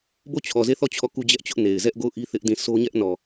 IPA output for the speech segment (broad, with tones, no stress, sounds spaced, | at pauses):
b o˦˨ t͡ɕʰ ɔ˨ z e˦˨ θ ɔ˦˨ t͡ɕʰ ɔ˦˨ k u˦ d͡ʑ ɛ˦ ʔ t͡ɕ ʊ˦ ʔ n e˨ ɪ̯ z ɛ˦ ʔ ɡ o˦˨ ʊ̯ ʔ i˦ θ ɪ˦ ʔ d ĩ˦˨ s o˦ ɲ ɛ˦ ʔ n ɔ˨